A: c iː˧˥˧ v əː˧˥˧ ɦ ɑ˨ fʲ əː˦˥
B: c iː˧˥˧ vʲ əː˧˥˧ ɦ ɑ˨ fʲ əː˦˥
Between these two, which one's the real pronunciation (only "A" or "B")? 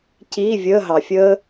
B